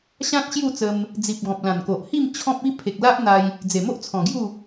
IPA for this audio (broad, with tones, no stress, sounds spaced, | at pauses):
ɕ ã˦ t̚ ɕ j u˥˧ t͡s ə˧ m | d͡z i˨ p̚ ɡ ɔ̃˨ p̚ l ã˨˩ n k o˨ ʔ h i˥˧ m t͡ɕʰ ɔ̃˦ p̚ i˦ pʰ e˨ k̚ l a˦ ʔ n̪ a˧ j | d͡z e˨˩ m o˦ ʔ t͡sʰ ɔ̃˨˩ ɡ j u˥˧